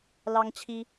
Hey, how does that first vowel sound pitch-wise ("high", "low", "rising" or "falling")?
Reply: high